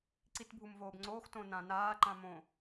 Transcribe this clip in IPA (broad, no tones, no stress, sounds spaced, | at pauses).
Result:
ǀ i t bʱ u m v oː b ŋ͡ǀ oː x t õ n ã n aː ǃ ã m õ